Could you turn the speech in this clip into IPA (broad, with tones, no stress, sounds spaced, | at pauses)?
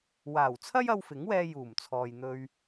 w aː˨˩ w t͡sʰ ɐ˥ j ɐ˧ w f ɪ˨˥ ŋ w ɛː˧ j uː˨˩ m t͡sʰ ɔː˨ j n̪ ɵ˧ ɥ